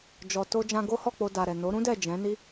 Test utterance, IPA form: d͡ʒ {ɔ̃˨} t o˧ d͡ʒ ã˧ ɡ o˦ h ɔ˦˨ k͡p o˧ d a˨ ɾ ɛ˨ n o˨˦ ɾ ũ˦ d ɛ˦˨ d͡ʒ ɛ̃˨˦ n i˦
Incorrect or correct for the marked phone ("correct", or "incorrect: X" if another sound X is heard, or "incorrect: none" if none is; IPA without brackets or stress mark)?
incorrect: ɔ˨